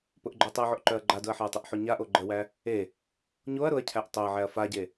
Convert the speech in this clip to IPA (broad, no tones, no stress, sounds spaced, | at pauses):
p ʊ ʔ ɡ͡ǃ ʊ ɐ̯ tˤ æ ʕ o ʔ ǃ œ ɐ̯ ɡ͡ǃ a d ʊ ɐ̯ ħ a ɐ̯ tˤ ə ʔ ħ o ɲ a ʔ o ɡ͡ǃ ə w æ | e | ɲ o ɐ̯ ɾ ʊ ɐ̯ cʰ æ ʔ tˤ œ ɐ̯ ʕ æ ɐ̯ f a ɟ e